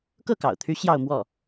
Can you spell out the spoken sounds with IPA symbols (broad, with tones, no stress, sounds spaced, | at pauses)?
k ɤ˥˩ k ɑ̰˨˩ ʊ̯ t̪ʰ y˧˥ ɕ j ɑ˥˧ ʊ̯ m w ɔ˥˩